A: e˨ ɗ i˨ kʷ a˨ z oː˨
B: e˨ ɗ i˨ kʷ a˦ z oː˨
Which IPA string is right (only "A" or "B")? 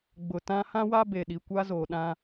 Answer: B